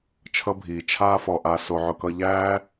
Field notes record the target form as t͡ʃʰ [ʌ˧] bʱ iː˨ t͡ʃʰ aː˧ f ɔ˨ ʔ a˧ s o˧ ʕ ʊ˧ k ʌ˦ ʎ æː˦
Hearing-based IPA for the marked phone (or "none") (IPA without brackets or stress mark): ʌ˧